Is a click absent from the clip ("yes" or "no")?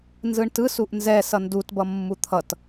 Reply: yes